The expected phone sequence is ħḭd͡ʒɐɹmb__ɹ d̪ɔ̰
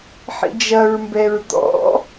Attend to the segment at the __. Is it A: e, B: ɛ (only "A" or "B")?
B